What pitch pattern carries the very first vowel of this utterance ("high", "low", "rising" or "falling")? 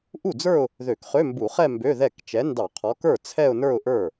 falling